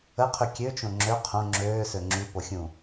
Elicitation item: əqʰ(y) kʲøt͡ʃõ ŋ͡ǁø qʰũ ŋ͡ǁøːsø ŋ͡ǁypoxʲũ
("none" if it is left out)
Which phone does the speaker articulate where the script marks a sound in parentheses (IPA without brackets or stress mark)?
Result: y